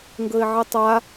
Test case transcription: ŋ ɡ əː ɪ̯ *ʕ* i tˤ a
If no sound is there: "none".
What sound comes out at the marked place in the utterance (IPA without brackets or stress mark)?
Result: ʕ